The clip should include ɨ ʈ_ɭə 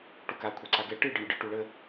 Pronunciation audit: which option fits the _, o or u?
u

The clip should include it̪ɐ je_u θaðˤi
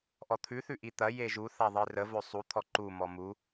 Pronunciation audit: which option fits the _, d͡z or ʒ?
ʒ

